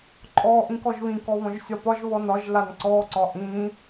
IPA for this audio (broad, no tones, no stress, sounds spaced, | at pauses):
ǃʼ ɔ ʔ ĩ k ɔ ʒ β ĩ k ɔ β ɔ̃ ʒ sʲ ɒ p ɒ ʒ β ɔ n ɒ ʒ l a n ǀ ɔ ǀ ɒ ʔ ĩ